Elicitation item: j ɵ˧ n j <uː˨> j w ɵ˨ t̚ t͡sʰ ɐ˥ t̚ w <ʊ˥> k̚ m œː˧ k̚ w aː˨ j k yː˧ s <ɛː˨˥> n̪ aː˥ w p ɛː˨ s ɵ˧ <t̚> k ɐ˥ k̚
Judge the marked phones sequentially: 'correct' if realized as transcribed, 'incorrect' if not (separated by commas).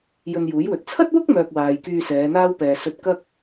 incorrect, correct, incorrect, correct